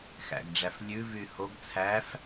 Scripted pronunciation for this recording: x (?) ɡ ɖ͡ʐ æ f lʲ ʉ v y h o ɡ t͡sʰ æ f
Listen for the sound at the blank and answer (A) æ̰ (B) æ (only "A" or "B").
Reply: A